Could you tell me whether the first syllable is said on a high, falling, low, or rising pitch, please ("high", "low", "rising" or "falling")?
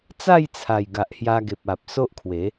falling